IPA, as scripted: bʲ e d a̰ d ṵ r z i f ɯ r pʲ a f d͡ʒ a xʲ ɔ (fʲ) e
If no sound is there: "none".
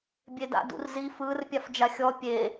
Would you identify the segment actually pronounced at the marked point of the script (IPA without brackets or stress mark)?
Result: pʲ